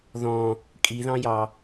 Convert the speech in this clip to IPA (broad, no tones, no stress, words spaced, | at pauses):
ðɔ̃ | kʼiðɑ̃jɑ